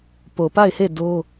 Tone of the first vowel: low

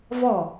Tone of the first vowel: falling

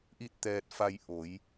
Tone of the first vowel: falling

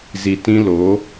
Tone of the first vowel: low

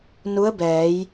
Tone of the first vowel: rising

